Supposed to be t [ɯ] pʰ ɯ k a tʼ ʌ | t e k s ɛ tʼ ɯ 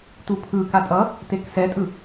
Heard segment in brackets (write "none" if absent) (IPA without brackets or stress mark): u